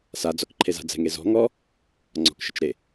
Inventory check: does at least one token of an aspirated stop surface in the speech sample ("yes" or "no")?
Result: yes